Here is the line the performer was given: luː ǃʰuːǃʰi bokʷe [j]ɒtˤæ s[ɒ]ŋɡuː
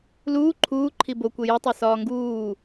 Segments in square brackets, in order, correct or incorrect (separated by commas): correct, incorrect